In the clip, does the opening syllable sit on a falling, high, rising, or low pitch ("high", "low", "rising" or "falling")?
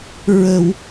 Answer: low